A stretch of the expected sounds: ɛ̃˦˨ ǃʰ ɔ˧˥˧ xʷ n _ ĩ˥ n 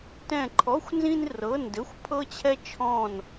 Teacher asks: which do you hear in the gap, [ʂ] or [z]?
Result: z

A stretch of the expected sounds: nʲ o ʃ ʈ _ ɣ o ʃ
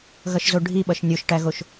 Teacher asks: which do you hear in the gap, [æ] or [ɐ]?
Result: æ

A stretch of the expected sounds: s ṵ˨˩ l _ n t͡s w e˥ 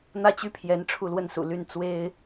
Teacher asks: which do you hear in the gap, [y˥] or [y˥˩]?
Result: y˥˩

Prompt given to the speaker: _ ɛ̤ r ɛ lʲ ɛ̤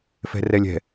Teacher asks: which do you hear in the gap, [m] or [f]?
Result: f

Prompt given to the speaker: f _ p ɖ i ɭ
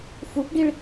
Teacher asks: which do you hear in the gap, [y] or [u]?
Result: u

